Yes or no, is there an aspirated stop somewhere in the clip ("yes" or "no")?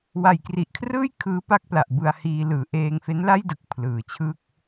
yes